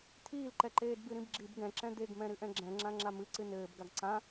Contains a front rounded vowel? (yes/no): no